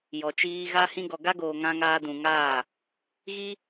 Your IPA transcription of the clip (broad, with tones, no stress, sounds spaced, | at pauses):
j ɔ˨ t͡ʃ iː˧ ɣ a˦ h ĩ˧ ɡ ɔ˨ ɡ a˦ ɡ oː˨ ŋ ã˧ ŋ aː˧ d ũ˨ ŋ aː˦˨ | ɣ i˦